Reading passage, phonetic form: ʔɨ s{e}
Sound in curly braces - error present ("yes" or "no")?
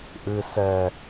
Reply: yes